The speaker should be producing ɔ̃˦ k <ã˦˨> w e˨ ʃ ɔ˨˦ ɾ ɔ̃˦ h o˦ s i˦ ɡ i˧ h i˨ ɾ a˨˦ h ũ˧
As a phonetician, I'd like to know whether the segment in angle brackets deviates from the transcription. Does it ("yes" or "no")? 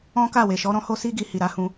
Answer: yes